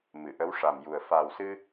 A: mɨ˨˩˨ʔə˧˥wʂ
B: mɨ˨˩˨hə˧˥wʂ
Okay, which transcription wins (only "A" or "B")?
A